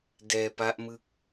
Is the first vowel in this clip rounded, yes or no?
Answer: no